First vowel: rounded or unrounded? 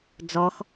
rounded